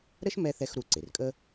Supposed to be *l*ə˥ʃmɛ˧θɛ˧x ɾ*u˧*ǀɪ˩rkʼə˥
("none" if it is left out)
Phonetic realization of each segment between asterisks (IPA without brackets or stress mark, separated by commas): ɾ, u˧